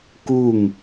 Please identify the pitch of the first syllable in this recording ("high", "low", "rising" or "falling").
falling